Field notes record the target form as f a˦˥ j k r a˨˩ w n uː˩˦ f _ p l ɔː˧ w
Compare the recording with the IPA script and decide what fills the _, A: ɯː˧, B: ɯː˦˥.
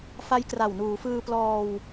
A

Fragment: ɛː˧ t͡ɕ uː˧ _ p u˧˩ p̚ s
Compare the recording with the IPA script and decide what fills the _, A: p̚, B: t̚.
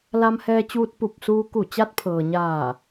B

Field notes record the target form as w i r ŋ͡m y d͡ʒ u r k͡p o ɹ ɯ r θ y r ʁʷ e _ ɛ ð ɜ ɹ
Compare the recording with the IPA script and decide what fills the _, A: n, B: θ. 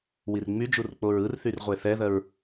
B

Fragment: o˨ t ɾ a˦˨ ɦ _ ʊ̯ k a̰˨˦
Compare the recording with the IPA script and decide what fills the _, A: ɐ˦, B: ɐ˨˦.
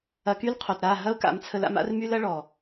A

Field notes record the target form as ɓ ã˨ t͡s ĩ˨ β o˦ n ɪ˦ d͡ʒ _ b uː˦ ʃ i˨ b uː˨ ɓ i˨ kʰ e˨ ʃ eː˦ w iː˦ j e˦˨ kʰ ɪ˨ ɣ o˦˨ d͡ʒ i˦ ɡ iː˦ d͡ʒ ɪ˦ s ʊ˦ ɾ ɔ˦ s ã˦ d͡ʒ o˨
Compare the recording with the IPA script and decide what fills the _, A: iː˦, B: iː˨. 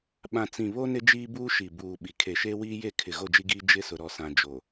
A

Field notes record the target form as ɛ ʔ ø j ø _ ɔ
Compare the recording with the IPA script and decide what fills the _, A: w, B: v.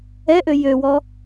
A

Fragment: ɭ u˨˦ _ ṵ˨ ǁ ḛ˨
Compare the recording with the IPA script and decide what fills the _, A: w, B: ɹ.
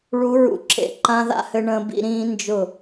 B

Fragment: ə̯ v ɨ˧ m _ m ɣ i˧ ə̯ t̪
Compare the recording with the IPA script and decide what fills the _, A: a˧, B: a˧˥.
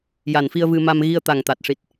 A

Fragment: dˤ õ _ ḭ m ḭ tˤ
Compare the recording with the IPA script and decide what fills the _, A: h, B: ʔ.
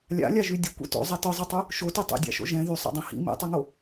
A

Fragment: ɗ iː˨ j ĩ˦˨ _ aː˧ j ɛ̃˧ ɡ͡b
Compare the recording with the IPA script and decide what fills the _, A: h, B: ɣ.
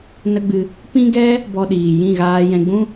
B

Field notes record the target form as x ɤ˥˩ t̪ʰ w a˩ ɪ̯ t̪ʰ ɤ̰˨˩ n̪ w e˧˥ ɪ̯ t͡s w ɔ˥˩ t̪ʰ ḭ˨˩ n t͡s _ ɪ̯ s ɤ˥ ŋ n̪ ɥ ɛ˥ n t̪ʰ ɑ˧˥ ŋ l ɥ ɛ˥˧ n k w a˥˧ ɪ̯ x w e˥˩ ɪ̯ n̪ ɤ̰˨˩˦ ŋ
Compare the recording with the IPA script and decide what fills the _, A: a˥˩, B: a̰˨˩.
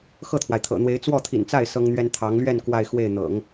A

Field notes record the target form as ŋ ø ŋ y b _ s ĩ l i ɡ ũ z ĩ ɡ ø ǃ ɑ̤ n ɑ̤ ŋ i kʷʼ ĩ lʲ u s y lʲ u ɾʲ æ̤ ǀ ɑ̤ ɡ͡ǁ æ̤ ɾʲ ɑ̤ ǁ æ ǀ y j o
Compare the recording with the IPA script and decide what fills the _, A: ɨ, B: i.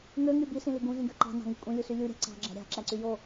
B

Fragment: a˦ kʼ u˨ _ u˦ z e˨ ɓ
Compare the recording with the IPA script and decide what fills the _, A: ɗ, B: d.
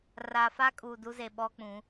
B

